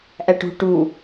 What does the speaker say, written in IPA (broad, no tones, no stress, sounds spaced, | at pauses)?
ʔ æ ʈ ṳ ʈ u